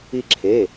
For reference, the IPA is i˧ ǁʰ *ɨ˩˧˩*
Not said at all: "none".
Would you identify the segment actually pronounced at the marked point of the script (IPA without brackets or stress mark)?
e˩˧˩